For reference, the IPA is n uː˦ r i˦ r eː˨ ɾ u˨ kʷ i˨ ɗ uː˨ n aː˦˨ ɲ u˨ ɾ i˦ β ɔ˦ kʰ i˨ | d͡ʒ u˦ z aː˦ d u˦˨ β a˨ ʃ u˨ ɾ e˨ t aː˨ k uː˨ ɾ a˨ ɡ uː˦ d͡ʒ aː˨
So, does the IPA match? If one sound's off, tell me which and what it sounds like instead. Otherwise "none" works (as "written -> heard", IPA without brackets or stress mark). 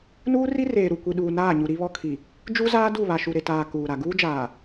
none